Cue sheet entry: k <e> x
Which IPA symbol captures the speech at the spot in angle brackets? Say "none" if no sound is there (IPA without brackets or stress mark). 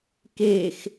e